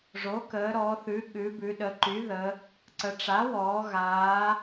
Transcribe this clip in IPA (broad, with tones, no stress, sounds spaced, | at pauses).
ʐ o˩˥ k əː˩˧ ɾ ɔ˩˧ θ ʉ˩˧ ɠ ʉ˩˧ b ʉ˩˧ ɗ ə˩˧ ǃ y˩˥ ð ə˩˧ | ǀ ə˩˧ ʈ͡ʂ a˩˥ w ɔː˩˧ ɣ aː˩˧